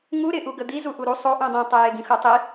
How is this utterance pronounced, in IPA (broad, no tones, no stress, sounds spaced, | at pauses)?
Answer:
ŋ u ɾ ɪ ʔ u ɡ ə d̪ i z u ʔ u ɾ u sˤ o ʔ ũ dˤ ĩ tˤ ə j e ɡ ĩ x u tˤ i